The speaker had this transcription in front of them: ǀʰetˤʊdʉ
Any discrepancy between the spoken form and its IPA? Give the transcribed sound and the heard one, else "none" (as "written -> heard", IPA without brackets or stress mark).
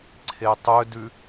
ʊ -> ɵ